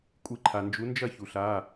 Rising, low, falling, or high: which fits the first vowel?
rising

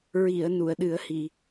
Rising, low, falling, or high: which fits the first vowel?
low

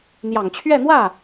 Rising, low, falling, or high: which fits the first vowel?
low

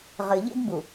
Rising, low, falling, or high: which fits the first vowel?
low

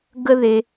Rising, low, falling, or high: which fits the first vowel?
high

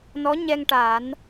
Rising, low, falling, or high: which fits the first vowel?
rising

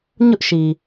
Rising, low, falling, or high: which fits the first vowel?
high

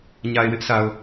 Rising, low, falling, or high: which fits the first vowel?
low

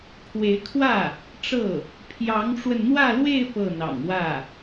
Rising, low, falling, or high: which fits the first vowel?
rising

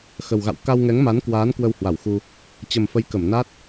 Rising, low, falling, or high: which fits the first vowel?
low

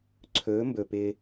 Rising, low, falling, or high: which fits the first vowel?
rising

